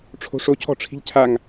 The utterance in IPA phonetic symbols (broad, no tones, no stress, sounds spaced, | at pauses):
ʈ͡ʂʰ o̤ ʂ o cʰ ɔ̤ ʈ͡ʂʰ i̤ ʎ cʰ a ŋ